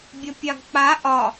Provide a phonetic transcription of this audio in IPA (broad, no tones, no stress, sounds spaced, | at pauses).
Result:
bʲ ɐ pʲ ɑ ɡ k͡p a ʔ ɒ